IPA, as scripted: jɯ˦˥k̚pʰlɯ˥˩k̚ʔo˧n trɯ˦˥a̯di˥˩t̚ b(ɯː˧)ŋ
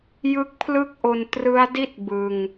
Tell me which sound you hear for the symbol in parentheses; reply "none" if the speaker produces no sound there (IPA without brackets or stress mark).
ɯ˧